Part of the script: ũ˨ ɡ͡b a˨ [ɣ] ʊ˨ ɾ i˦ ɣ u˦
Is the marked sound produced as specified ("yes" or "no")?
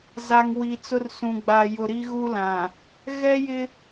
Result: no